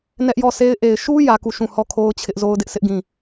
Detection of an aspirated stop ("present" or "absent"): present